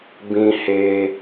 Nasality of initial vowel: nasal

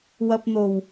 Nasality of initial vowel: oral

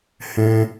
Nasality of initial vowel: nasal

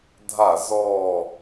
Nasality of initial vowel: oral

